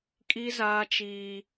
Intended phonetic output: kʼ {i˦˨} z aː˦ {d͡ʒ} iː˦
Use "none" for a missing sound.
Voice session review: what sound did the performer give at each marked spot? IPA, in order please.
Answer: i˦, t͡ʃ

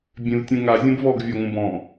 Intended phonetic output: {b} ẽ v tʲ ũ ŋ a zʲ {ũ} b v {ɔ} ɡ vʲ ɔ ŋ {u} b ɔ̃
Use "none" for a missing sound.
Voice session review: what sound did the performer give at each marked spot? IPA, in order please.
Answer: bʲ, õ, ɔ, ũ

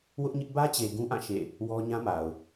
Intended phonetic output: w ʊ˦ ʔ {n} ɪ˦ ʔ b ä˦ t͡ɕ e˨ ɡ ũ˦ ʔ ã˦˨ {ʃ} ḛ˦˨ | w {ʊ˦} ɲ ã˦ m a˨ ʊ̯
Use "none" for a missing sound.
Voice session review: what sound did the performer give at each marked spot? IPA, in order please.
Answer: ɲ, ʃ, ɔ˦

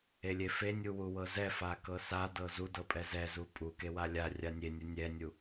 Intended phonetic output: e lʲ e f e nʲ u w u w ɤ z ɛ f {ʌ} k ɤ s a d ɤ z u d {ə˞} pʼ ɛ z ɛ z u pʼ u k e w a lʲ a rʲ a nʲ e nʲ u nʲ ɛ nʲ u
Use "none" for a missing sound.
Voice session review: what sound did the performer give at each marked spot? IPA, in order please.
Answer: a, ɤ

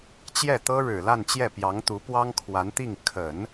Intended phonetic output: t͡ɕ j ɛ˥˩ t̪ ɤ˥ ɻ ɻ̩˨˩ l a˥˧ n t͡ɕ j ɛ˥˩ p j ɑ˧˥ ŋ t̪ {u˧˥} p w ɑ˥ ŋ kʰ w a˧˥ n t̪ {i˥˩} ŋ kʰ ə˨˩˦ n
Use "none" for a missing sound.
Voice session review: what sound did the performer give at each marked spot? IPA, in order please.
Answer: u˧˥, i˥˩

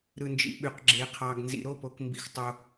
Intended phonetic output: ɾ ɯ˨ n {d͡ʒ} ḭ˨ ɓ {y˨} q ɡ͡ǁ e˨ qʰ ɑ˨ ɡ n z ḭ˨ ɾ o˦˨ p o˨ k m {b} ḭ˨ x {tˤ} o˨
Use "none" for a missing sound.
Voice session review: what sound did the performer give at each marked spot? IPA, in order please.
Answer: d͡ʒ, y˨, b, tˤ

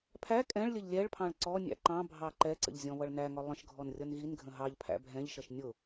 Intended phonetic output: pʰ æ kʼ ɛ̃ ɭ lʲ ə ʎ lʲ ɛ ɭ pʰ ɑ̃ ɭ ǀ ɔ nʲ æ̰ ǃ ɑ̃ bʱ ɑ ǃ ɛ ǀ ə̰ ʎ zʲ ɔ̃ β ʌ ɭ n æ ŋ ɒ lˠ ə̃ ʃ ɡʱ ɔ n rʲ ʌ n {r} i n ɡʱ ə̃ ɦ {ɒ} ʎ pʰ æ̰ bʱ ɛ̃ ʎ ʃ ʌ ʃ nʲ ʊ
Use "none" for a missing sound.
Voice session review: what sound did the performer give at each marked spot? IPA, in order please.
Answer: ɣ, ɑ

